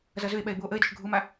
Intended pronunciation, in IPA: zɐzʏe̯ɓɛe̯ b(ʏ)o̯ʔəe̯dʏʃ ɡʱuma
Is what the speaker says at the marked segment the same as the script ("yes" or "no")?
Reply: no